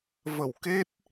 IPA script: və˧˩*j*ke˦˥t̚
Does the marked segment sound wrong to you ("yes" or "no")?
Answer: yes